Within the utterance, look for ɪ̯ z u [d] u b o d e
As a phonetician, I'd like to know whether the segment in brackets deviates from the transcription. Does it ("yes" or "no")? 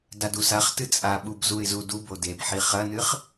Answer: no